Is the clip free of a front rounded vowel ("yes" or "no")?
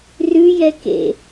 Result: yes